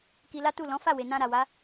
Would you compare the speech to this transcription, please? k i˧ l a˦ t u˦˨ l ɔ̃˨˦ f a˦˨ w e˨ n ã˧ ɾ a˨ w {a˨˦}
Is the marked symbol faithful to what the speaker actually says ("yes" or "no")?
yes